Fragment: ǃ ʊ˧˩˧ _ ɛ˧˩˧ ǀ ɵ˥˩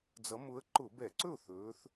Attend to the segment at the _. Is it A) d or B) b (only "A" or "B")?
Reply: B